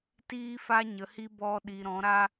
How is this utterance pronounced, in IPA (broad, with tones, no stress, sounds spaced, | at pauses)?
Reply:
t iː˦ f a˦ ɲ ə˨˦ h i˦ b ɔ˧ ɗ i˨ ɾ ɔ̃˨˦ ɾ a˦